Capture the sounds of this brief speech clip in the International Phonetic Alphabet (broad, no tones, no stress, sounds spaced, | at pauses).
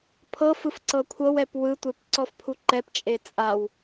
pʰ ɤ f ɯ f ǀ ɤ kʷʰ ɤ w ɛ p w ɯ tʷ e p ǀ ɔ f pʰ u ǃ ɛ p t͡ʃʼ e t͡sʼ a w